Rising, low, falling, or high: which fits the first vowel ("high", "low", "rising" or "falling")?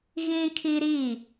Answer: high